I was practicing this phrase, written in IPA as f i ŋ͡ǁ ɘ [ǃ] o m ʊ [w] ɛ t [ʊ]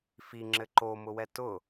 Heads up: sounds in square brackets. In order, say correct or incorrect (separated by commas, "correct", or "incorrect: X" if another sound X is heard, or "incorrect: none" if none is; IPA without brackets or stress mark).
correct, correct, correct